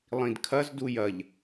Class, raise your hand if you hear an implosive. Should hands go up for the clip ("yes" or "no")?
no